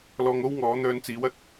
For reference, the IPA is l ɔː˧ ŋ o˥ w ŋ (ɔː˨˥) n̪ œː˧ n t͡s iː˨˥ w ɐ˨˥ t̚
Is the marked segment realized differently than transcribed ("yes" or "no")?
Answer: no